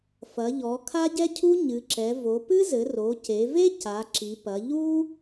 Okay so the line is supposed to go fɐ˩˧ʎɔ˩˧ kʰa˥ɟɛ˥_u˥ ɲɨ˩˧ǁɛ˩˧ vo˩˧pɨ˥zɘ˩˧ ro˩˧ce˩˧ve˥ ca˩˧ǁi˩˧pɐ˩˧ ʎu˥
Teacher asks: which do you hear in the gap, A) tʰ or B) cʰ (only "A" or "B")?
B